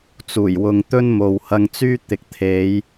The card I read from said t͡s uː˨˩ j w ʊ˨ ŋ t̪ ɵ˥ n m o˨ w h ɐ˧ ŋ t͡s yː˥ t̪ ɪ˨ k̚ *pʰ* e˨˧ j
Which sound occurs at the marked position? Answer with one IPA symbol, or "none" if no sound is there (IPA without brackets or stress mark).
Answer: t̪ʰ